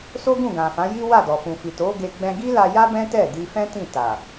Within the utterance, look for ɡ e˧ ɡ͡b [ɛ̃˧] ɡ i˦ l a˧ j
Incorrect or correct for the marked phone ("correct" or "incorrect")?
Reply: correct